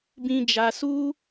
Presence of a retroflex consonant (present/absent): absent